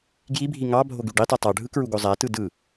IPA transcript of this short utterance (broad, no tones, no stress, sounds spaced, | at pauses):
ɡ j i bʱ i ŋ ɑ bʱ o ɡ y ɖ i tˤ u tˤ ɑ ɖʱ ɯ k ɹ u ɡ o zˤ æ t ɯ d ɯ